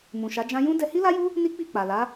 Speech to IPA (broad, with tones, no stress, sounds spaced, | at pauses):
m ũ˨ ʃ a˨˦ d͡ʒ ã˦ j ũ˦ d ɛ˧ h i˦ l a˦ j u˦ | n i˦ k͡p i˦˨ k͡p a˨ l a˨˦